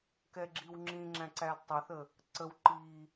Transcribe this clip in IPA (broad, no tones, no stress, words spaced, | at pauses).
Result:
kɛɡ͡ǁiwŋ͡ǁĩŋ͡ǁæ̃ ǀædtˤʊθə | ǀəw ǃi